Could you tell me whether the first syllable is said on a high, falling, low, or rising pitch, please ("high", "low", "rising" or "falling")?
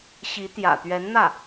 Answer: rising